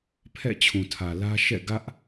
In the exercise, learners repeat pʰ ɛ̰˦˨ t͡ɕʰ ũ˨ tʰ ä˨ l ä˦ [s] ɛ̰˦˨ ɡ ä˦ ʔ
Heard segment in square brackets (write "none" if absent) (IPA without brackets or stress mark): ʃ